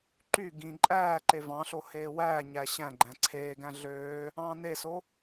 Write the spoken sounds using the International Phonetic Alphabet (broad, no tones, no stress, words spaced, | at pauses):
ǃy ɡĩ ǃʼæːǃe vɑ̃ɬo heːwæːɲæ ɕæ̃ ɡ͡ǃæ̃ǀʰeːɡæ̃ ɮøː | ɑ̃ːneso